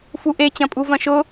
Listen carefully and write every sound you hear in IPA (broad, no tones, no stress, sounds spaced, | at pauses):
f u ʔ e t͡ɕ ɐ̃ pʼ u v ɐ̃ ʃ ʊ